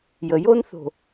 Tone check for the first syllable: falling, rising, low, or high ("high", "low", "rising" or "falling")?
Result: low